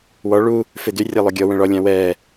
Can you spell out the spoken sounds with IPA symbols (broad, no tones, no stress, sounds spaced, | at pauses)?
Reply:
w ɔ ɭ u | f e d y rʲ a lˠ o ɡʲ ɔ w ə̃ ɭ ɔ lʲ ã w ɛ